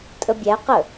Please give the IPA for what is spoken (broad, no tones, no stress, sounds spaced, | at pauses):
tʼ ə bʲ æ q ə